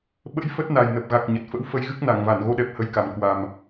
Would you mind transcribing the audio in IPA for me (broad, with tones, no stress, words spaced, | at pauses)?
ɓə̰˧˥jfə˦˥t̚ na˨˩jnə˨˩p̚ɣa˨˩k̚ ɲə˨˩t̚fə̰˧˥w fə˧jɣɨ˦˥k̚na˧˩ŋ va˧˩nɣo˧ɗɛ˨˩p̚ hə˨˦jka˨˩m kwa˨˩m